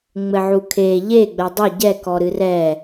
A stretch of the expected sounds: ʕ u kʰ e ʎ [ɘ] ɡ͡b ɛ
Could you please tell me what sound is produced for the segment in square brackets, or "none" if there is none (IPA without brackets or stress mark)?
e